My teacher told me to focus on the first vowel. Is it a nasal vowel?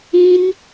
yes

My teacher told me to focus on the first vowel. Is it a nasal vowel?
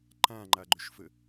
yes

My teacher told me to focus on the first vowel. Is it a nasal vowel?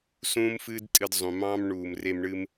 yes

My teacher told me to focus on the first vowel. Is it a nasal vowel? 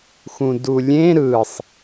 yes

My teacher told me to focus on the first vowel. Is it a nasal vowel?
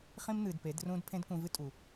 yes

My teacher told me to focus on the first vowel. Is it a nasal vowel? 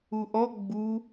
no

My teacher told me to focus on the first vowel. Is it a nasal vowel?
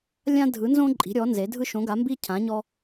yes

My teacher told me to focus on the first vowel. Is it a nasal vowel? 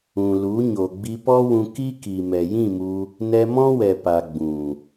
yes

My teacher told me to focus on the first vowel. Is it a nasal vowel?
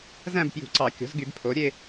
yes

